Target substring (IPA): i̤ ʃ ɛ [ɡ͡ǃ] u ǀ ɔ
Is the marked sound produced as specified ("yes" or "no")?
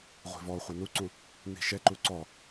no